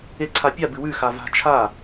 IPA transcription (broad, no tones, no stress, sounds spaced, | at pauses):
e ǀʰ a pʲ a b ɨ w ʉ x a v a̤ t͡ʃʰ a